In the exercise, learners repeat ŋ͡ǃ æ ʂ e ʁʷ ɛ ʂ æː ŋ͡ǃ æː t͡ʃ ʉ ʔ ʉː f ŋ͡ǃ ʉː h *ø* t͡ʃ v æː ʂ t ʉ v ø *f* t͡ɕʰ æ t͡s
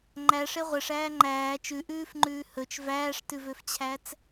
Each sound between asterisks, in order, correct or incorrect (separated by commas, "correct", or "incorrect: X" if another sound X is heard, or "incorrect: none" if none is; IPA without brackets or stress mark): incorrect: ɵ, correct